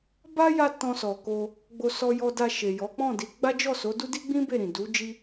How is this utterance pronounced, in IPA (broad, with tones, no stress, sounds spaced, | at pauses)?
b a˦ j a˧ t ɔ̃˧ s ɔ˨ k o˧ | ɡ͡b o˧ s ɔ˧ j ɔ˧ d a˧ ʃ e˨ j ɔ˨˦ k͡p ɔ̃˦˨ d i˨˦ ɡ͡b a˦ d͡ʒ ɔ˦˨ s o˨˦ d u˦ d i˦ ɡ͡b ĩ˦ b e˦˨ ɾ ĩ˨ d u˨˦ d͡ʒ i˦